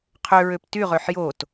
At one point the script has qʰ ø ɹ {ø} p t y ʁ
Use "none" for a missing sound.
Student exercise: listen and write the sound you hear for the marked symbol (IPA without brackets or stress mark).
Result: ø